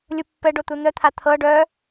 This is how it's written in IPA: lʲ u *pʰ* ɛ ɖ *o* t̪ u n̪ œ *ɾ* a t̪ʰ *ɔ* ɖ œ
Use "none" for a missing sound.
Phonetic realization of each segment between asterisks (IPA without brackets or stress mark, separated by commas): pː, o, t̪ʰ, ɤ